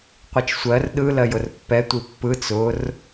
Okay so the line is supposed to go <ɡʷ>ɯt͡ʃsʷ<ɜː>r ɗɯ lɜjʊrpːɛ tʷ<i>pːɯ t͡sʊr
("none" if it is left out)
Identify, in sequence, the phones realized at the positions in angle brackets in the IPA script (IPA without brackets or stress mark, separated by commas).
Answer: qʷ, ɜ, i